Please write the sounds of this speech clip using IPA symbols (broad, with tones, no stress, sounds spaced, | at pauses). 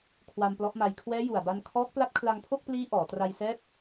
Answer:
kʰ w a˧ m p l ɔ˦˥ ʔ m a˧ j kʰ w ɛː˦˥ j u˨˩ a̯ b a˧ n kʰ ɔː˦˥ k̚ p l a˦˥ t̚ kʰ l a˧ ŋ pʰ o˥˩ k̚ p l iː˦˥ ʔ ɔː˩˦ t r a˧ j s ɛː˦˥ p̚